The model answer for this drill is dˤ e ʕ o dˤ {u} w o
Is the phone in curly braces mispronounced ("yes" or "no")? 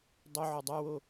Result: yes